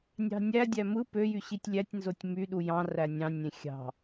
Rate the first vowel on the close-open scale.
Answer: open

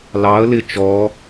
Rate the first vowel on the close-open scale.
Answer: open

